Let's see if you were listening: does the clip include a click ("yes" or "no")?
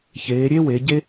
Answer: no